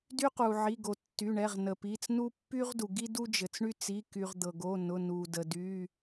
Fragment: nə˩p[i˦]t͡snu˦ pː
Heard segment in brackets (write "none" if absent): i˩˧˩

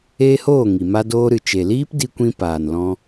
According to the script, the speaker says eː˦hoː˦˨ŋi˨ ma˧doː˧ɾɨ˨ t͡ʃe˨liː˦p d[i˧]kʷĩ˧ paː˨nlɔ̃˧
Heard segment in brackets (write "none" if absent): i˧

